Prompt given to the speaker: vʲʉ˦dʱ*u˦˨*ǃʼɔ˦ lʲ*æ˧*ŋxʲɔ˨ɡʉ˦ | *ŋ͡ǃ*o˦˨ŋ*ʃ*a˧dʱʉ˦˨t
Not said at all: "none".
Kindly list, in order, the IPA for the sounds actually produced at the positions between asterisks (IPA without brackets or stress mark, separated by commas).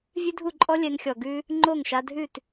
u˦˨, ɛ˧, ŋ͡ǃ, ʃ